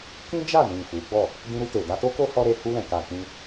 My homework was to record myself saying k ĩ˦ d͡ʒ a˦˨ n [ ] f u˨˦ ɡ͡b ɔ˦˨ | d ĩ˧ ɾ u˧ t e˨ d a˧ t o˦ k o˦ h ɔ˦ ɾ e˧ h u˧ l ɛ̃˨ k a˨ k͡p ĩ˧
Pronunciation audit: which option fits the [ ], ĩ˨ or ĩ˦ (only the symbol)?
ĩ˨